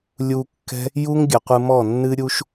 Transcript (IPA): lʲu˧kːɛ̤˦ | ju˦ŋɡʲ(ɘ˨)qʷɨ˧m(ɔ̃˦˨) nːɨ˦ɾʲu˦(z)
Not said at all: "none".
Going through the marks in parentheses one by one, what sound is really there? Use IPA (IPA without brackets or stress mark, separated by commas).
ɘ˨, ɔ˦˨, ʃ